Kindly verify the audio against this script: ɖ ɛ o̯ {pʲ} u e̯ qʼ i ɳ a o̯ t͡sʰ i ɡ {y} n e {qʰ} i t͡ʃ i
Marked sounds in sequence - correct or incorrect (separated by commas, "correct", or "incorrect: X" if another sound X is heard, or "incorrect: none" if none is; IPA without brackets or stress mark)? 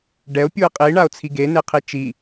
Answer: correct, incorrect: e, correct